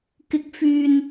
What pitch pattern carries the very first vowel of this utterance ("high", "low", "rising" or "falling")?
rising